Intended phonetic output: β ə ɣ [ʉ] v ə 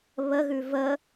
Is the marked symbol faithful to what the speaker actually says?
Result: yes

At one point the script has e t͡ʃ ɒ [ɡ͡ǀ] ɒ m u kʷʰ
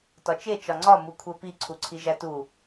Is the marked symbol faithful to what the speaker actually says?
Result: no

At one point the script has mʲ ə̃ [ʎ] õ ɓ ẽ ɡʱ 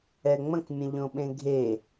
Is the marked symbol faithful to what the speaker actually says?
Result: yes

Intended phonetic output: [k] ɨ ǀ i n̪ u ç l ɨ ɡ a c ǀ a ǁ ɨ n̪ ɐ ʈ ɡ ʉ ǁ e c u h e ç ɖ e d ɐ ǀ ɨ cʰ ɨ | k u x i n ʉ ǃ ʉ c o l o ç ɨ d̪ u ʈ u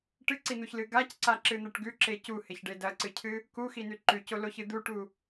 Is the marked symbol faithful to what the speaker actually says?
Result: no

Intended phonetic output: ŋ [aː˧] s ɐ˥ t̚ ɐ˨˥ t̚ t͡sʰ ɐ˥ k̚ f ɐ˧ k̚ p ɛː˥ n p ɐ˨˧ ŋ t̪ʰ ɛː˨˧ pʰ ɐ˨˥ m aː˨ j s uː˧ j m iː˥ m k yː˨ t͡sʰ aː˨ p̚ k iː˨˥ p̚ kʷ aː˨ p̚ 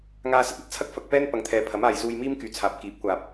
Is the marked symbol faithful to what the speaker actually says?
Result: yes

